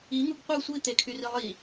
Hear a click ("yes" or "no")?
no